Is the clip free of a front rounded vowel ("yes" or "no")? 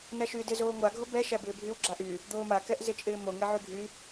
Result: no